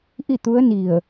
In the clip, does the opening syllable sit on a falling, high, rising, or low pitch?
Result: falling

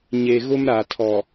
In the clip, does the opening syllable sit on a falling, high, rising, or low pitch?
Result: low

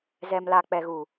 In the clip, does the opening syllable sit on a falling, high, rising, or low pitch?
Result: low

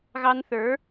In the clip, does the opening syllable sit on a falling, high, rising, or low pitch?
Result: high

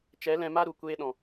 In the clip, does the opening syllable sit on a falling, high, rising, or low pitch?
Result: rising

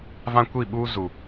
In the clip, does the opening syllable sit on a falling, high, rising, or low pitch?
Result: high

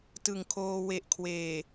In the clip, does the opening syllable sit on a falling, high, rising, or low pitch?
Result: low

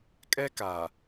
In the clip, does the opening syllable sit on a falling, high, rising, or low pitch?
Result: high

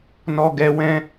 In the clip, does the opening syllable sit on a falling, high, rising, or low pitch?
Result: high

